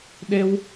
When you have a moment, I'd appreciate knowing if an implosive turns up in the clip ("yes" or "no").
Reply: yes